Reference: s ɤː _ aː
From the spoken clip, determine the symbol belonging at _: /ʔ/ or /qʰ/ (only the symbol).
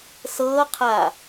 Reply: qʰ